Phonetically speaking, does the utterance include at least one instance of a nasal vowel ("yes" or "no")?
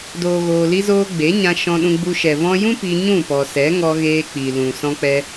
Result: yes